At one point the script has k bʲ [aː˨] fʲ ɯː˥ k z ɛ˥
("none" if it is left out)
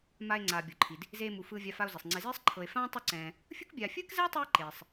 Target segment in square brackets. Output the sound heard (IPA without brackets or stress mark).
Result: aː˨